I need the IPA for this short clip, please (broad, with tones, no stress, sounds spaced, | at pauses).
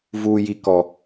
v uː˨ j i˨ k ɔ˨